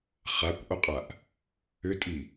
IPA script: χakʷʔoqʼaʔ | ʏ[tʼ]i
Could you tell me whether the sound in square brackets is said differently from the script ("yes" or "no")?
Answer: no